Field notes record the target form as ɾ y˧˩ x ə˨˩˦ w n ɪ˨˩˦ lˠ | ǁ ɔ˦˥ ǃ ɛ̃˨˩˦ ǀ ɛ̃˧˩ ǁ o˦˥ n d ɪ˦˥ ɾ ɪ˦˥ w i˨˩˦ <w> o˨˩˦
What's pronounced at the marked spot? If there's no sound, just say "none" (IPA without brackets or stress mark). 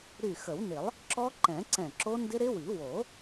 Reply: w